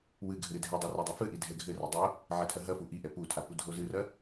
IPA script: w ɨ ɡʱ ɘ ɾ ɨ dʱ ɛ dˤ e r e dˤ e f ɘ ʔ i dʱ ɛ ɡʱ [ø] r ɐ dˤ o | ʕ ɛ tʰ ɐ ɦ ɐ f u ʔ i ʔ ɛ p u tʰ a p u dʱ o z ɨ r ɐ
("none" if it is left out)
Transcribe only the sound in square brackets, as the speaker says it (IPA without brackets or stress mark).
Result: ɘ